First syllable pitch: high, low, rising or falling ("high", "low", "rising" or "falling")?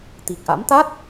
low